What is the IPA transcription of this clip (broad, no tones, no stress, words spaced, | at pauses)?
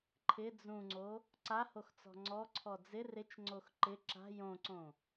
ǃʰɪ d͡zũŋ͡ǀo | ǀahoxt͡sɔ̤ ŋ͡ǀɔǀʰɔ d͡zɪ rɪt͡ʃŋ͡ǀox ǃɪ ǁa̤ jõǀõ